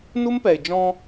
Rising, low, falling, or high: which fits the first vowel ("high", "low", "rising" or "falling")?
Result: high